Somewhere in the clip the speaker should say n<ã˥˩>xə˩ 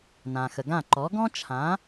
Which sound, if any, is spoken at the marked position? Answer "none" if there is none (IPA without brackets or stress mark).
ã˩